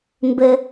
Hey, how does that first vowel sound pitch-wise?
high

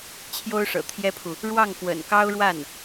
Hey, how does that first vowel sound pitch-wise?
high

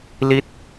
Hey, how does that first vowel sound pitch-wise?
falling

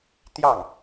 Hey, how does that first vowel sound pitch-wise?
falling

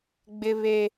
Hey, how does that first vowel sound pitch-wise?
high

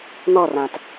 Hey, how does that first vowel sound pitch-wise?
falling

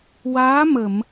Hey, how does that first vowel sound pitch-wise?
rising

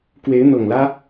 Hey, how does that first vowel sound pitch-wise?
rising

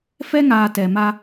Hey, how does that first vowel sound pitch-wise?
high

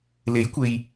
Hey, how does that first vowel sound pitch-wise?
rising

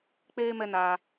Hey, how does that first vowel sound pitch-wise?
high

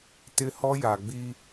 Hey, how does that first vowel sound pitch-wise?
high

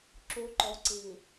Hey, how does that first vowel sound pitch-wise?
low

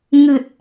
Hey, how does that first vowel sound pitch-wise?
low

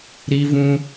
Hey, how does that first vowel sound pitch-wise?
high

